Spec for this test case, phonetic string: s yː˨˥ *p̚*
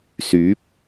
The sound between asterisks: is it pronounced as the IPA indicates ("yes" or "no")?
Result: yes